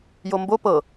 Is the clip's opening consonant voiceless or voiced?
voiced